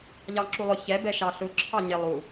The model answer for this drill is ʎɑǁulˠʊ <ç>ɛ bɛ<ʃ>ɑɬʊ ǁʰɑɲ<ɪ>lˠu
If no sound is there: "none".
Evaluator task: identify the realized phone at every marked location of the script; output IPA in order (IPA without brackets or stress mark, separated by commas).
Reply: ç, ʃ, ɪ